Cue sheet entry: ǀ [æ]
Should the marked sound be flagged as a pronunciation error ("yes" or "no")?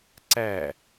no